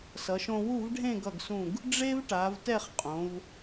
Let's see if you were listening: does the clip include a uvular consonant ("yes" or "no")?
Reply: yes